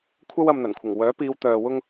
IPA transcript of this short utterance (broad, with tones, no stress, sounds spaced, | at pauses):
kʷʰ ɐ˥ w ɐ˧ m n̪ ɐ˨˩ n kʷʰ ɪ˨˩ ŋ w œː˨˥ p iː˨˧ w t̪ œː˨ w ʊ˥ ŋ